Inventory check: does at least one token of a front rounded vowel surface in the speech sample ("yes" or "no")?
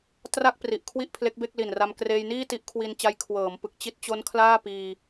no